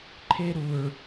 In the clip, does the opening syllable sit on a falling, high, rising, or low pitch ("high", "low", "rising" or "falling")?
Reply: high